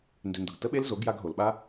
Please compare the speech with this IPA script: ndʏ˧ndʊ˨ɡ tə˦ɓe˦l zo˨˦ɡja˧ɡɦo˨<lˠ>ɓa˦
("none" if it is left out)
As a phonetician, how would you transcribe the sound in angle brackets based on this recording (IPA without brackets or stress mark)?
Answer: l